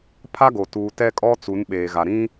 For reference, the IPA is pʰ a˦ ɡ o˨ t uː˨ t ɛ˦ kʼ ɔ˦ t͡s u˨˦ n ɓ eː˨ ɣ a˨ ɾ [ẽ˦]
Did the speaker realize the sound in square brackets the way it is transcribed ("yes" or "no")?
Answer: no